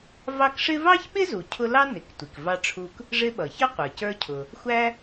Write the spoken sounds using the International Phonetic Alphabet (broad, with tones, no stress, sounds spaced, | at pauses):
v ɑ˦ k ʂ ɪ˥ v ɑ˥ ç ɓ ɪ˥ z u˩ cʰ ʊ˦ l ɑ˥ n ɪ˩ k tʷ i˩ k v ɑ˦ ʈ͡ʂʰ u˦ k | ʐ ɪ˦ ɓ ʌ˩ ç ʌ˥ qʷ ə˞˩ c ə˞˦ cʰ ʊ˨ | xʷ æ˥